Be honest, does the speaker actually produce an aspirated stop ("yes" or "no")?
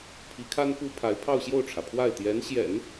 yes